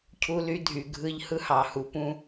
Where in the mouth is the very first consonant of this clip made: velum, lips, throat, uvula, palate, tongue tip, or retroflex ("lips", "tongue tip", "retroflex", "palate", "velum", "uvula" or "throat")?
palate